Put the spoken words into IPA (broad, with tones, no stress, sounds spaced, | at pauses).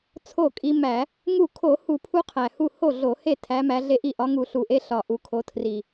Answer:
t͡sʰ o˥˩ kʼ i˦ m æ˧˩˧ | ŋ u˥˩ kʰ o˧˩˧ h u˧˩˧ pʰ u˦ qʰ æ˨˩ h u˥˩ h o˥˩ ɮ o˧˩˧ h e˥˩ tʰ æ˨˦ m æ˨˦ ɮ e˦ ʔ i˥˩ ʔ ɒ˨˦ ŋ u˧˩˧ ɬ u˨˩ ʔ e˦ ɬ ɒ˨˩ ʔ u˨˩ kʰ o˨˦ tʰ r i˨˩